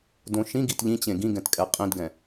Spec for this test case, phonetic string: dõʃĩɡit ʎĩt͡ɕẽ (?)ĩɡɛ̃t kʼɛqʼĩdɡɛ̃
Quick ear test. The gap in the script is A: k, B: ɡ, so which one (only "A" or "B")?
B